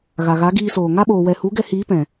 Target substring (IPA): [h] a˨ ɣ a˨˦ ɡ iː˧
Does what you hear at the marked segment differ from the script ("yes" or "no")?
yes